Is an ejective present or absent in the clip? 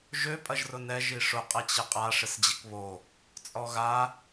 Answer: present